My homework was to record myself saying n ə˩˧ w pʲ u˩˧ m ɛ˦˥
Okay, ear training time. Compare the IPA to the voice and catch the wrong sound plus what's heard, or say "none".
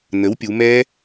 ə˩˧ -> ə˩˥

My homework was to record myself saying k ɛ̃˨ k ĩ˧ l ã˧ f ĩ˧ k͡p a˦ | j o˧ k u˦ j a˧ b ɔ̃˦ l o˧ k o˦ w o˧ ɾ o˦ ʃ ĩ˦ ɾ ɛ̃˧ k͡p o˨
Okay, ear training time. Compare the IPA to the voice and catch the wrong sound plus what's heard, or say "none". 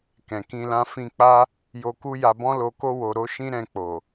none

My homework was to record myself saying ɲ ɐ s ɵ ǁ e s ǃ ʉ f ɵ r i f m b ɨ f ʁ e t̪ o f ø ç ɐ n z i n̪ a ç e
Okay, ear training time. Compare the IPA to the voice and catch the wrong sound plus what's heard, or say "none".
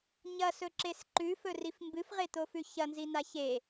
ø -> ʉ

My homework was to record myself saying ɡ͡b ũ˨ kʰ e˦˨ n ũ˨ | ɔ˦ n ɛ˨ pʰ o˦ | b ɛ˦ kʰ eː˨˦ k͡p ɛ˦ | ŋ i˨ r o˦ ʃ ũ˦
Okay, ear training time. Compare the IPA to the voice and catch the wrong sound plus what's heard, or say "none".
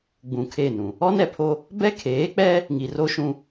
none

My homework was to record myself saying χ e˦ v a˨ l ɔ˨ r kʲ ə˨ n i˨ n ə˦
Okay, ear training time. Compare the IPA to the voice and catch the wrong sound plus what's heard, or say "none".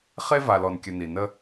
r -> n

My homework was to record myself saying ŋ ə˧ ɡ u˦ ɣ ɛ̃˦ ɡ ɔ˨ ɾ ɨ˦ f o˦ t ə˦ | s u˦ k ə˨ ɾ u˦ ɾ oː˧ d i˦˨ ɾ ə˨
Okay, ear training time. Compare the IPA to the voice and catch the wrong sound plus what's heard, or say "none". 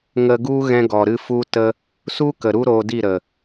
o˦ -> u˦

